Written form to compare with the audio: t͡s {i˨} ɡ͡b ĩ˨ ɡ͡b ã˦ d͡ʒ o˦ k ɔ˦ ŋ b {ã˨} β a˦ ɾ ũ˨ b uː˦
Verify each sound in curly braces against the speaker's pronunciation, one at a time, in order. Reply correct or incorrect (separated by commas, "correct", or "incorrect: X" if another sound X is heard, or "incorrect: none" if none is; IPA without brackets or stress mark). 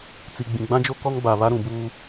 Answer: correct, incorrect: a˨